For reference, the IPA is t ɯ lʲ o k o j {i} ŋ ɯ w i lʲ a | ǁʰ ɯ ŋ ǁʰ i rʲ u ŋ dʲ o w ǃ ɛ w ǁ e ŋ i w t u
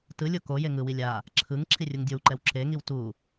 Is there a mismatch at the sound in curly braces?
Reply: yes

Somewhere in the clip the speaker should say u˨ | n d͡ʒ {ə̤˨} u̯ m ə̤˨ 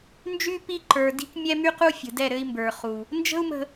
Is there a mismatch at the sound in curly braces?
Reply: yes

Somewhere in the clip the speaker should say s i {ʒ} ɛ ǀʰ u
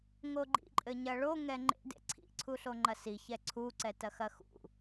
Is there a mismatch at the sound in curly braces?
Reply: yes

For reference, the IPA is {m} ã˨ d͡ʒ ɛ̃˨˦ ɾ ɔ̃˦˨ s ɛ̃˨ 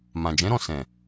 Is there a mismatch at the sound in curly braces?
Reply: no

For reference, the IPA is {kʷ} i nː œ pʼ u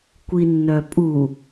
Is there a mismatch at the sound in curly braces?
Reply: no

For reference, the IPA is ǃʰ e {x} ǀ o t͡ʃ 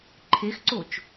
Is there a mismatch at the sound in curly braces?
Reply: no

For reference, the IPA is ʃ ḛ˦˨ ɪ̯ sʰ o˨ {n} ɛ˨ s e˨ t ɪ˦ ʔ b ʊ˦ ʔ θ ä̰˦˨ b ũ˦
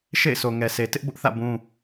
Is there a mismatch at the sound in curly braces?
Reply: yes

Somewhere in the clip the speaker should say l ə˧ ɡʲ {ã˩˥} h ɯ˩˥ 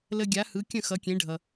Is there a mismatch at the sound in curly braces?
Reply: yes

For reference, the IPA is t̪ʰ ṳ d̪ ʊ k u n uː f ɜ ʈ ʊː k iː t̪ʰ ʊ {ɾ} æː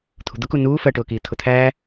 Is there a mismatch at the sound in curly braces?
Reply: yes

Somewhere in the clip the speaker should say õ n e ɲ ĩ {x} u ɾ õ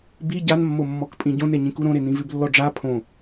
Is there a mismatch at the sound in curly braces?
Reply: yes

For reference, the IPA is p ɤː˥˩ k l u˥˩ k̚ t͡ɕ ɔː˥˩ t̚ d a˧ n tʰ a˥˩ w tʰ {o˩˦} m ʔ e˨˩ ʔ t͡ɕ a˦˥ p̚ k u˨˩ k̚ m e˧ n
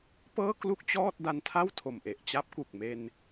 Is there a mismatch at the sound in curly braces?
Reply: yes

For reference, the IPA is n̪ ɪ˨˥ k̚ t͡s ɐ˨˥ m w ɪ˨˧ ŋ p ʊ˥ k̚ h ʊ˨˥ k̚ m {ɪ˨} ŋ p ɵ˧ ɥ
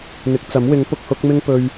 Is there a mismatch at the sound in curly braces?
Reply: yes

